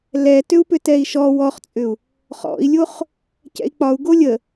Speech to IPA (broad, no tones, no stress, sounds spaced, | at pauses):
l ɛ t ʏ u̯ p ʏ t ɛ i̯ ʃ ɔ w ɔ χ t͡sʼ ʏ u̯ | χ ɔ̰ i̯ lʲ o χ | c ɛ̰ i̯ k͡p ɒ u̯ ɡ o lʲ ə